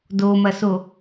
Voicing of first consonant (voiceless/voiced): voiced